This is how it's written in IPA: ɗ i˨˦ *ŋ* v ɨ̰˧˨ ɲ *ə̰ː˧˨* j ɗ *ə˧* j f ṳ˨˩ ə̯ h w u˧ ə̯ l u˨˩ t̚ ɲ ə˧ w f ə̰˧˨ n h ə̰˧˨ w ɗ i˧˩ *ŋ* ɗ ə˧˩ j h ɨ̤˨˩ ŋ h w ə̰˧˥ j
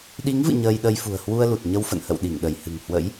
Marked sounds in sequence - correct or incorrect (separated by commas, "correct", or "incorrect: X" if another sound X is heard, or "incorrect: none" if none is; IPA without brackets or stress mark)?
correct, incorrect: əː˧, correct, correct